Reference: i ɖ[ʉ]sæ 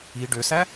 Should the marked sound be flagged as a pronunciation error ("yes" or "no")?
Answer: yes